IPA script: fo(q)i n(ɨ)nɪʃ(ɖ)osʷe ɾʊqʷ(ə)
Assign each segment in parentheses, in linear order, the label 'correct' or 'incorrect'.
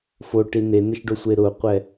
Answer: incorrect, incorrect, correct, incorrect

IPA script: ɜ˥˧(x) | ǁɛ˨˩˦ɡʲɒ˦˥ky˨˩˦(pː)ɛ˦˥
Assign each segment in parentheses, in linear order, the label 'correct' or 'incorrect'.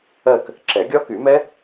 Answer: incorrect, incorrect

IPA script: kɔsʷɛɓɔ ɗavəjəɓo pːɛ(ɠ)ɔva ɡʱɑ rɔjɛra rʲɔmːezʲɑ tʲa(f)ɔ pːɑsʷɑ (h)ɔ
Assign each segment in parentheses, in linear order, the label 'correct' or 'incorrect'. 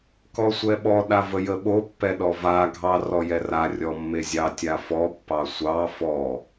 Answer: incorrect, correct, incorrect

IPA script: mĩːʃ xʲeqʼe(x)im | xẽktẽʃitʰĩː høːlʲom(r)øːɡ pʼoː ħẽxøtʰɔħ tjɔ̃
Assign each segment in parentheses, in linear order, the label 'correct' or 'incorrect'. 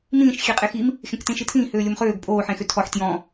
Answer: correct, incorrect

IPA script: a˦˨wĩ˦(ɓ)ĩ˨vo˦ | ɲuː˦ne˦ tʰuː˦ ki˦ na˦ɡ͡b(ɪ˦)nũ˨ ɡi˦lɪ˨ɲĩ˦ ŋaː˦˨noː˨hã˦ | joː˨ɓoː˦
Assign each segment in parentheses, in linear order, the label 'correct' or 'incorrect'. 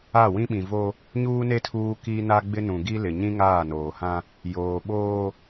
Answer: correct, correct

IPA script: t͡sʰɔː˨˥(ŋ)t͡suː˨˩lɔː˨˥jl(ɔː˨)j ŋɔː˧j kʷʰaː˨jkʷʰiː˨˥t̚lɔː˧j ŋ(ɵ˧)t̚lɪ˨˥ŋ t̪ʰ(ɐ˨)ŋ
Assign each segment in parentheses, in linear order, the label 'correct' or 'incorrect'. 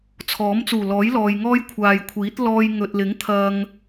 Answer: incorrect, correct, incorrect, correct

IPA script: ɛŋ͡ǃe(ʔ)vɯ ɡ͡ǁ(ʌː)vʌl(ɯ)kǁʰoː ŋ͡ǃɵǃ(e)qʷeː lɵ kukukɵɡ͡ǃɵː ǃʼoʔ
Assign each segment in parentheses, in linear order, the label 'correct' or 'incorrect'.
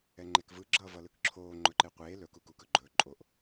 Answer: incorrect, correct, correct, correct

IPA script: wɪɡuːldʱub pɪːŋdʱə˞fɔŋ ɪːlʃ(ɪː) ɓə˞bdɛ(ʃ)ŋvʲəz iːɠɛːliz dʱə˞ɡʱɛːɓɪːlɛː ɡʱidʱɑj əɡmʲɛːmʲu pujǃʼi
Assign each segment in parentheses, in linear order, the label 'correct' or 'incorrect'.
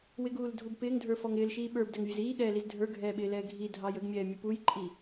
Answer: incorrect, incorrect

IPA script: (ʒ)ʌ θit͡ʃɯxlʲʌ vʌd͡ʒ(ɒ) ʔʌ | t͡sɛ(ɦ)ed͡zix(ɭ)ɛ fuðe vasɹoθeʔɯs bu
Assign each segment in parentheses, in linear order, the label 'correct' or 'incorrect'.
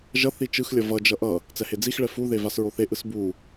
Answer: correct, incorrect, incorrect, correct

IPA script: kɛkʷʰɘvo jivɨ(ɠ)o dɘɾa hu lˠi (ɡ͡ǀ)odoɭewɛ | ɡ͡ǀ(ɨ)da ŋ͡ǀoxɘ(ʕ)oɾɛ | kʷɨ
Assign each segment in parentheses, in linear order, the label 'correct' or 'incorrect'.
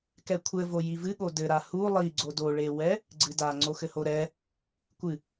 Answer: correct, correct, correct, incorrect

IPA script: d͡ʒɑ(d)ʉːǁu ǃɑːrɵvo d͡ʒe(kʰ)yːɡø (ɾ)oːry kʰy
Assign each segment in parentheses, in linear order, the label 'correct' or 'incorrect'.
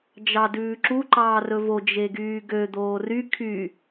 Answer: correct, incorrect, incorrect

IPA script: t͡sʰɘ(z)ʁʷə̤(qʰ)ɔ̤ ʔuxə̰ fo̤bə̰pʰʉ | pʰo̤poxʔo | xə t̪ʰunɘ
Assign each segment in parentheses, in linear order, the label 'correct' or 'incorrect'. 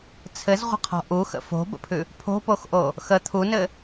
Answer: correct, correct

